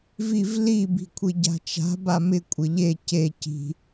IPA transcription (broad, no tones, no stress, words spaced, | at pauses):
viv li bi̤kʷʰiɟa̤t͡ʃa̤ bamɪ kʷʼɪʎe ce ci̤